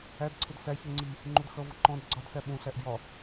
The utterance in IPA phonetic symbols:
æ d ǀʰ ʊ d s æ ç u ŋ͡ǀ i | ŋ͡ǃ u d x ʌ v ʊ ǃ ɔ̃ d ɡ͡ǀ ɒ d s æ ɓ ũ ɬ æ ʔ d j ɒ

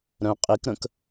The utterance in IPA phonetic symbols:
ɾ œ̃ qʼ i k ɾ ə̃ k

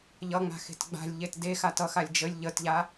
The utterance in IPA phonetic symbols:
ʎ ʌ ŋ͡m a̤ x e̤ t ɡ͡b a̤ lʲ ʎ e t d e x a t ʌ x a lʲ d͡ʒ ə lʲ ʎ ə t ʎ a

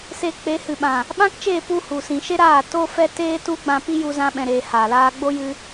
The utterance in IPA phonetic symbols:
s eː˧ k͡p e˨˦ h ɨ˨ ɓ ã˨ | ɓ ã˦ k t͡ʃ eː˦˨ p u˧ h u˨ s ĩ˨ ʃ e˦ ɾ aː˦˨ t o˦ f ɛ˦ t eː˦ t u˦ ɡ͡b ã˧ p i˦ j u˧ z ã˧ ɓ ɛ̃˨ ɾ eː˨ h aː˨ l aː˧ ɡ͡b o˦ j ɨ˧

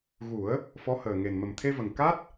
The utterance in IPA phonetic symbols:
ɣ u˨˩˦ ə̯ | f ɔ˧˥ h əː˨˩ ŋ e˨˩ n m ə˨˩ m t̪ʰ e˧ v ə˨˩ ŋ k a˦˥ t̚

